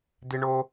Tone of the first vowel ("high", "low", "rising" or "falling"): high